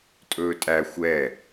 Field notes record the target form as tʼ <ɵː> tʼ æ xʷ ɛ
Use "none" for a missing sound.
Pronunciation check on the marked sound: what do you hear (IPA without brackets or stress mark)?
ɵː